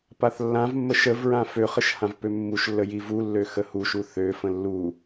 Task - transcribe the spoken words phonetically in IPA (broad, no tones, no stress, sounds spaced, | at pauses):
p a θ lː ã v mː ə ʃ ə v ɹ ã f ø χ ə ʃ h ã v p ø mː u ʃ lː ə j i v u lː ø x ə h u ʃ u θ ø f ə̃ lː u